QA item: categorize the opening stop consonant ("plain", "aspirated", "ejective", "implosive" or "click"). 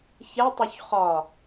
plain